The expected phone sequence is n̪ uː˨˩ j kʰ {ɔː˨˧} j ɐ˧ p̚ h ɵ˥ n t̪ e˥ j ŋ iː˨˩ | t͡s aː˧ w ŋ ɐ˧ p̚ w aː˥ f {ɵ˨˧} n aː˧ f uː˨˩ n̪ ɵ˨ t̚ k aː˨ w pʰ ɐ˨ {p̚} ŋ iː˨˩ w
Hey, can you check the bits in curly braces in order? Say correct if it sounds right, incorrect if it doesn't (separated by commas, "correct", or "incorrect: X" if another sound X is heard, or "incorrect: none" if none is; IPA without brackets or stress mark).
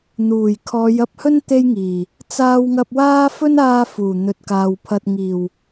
correct, incorrect: ɵ˥, incorrect: t̚